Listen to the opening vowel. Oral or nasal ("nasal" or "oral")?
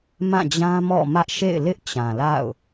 nasal